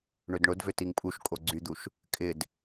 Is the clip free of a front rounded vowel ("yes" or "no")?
no